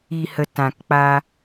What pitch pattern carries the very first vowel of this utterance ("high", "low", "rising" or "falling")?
low